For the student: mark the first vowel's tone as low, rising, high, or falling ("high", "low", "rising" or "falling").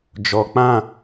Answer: low